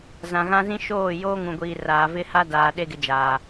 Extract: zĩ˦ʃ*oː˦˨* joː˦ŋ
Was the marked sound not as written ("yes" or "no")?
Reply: no